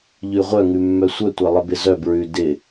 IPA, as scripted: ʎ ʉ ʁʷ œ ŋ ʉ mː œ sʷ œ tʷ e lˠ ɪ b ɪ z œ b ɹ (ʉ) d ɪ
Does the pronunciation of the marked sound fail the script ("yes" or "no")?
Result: no